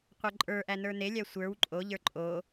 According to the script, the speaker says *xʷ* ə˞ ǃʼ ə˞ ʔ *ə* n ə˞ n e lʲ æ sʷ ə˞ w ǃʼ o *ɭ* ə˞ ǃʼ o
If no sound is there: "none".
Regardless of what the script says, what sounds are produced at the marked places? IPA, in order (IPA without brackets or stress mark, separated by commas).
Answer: qʷ, æ, ʎ